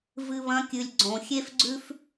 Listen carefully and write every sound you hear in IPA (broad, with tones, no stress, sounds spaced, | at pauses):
v ɨ˨ β ɐ̃˨˦ kʲ ɨ˨ lʲ ɡ͡ǀ õ˨ xʲ e˦ f ɡ͡ǀ ʉ˦ f